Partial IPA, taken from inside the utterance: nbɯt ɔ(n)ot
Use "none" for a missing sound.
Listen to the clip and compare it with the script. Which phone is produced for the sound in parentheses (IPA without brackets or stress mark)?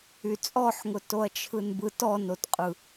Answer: n